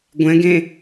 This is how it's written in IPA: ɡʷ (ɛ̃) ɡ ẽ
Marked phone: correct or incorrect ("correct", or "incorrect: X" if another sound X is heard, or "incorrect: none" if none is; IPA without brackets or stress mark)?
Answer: correct